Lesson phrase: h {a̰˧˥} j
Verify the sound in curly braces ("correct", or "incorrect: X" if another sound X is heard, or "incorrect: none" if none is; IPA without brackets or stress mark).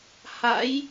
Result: correct